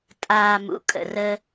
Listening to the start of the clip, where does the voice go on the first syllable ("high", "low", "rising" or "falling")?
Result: low